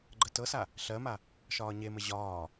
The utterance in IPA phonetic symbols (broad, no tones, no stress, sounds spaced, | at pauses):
ɡ͡ǃ ə t ɤ s a | ɬ ɜ m a | ʃ ɒː ɲ e m ə ʑ ɒː